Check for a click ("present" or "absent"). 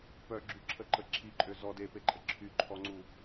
present